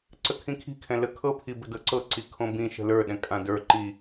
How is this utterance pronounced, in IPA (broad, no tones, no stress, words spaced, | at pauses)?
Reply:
ǀəkʰĩkʰi̤kʰɛ̃ ləkʰɤpʰi bə̤dɤǀɤǀi kʰõbĩʃə̤ lə˞ɗɛ̃ kʼãdə˞ǃi